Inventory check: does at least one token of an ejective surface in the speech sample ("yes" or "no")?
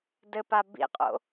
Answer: yes